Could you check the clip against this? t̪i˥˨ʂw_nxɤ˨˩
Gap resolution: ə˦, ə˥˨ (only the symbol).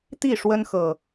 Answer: ə˦